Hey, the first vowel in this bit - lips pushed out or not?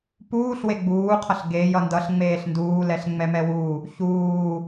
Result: yes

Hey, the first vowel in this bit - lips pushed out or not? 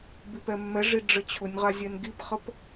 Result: no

